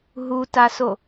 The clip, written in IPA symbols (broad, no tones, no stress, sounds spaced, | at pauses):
ɦ u t a s o